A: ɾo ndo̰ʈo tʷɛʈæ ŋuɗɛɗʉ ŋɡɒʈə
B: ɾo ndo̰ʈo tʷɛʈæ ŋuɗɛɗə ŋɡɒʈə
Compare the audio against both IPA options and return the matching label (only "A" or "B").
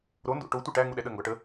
B